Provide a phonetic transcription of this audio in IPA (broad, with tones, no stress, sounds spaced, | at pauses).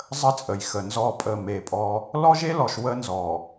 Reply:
zˤ ə˦ t͡sʼ ə˨ j x ə˨ n z ɔ˦˨ pʼ ə˦˨ m e˨ pʼ ɔ˦ | l ɔ˦ ʒ e˦ l ɔ˨ ʃ w ə˦ n z ɔ˨